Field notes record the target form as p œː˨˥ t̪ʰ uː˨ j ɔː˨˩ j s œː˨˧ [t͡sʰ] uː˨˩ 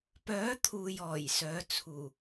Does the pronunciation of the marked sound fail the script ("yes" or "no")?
no